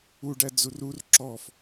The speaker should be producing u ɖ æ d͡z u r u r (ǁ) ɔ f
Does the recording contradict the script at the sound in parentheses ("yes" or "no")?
no